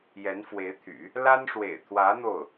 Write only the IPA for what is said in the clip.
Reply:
jɛ˧˥nfwe˧˥ɪ̯t̪ʰy̰˨˩˦ | la˥nʂwḛ˨˩ɪ̯t̪ʰwä˧˥ n̪o˥˩ʊ̯

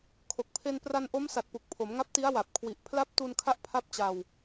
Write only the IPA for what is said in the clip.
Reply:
kʰo˨˩k̚pʰe˧n pra˧n ʔo˦˥msa˨˩t̚pu˨˩k̚ pʰo˩˦mŋa˦˥p̚ti˦˥a̯wa˨˩p̚ kʰwi˨˩ʔpʰla˦˥p̚tu˧n kʰa˥˩ʔpʰa˥˩p̚t͡ɕa˧w

